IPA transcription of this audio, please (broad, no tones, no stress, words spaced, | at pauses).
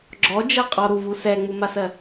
ɡ͡ǁɔd͡ʒɛ qʼɔɾuvu sɛŋ͡mumasɜ